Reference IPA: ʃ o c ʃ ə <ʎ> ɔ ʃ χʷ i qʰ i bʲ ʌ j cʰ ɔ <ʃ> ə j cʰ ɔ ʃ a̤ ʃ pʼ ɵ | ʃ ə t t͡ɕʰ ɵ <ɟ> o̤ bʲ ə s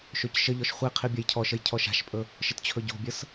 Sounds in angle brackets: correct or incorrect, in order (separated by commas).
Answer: correct, correct, correct